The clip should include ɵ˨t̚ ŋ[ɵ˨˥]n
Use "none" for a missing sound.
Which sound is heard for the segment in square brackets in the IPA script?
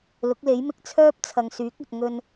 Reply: ɵ˧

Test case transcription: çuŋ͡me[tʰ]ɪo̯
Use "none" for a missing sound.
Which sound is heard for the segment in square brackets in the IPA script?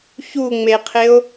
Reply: qʰ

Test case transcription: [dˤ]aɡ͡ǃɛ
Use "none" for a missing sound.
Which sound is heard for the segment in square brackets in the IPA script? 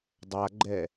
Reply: dˤ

